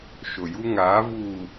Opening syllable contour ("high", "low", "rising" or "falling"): low